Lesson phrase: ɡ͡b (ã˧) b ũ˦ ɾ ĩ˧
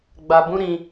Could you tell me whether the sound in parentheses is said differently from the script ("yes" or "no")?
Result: yes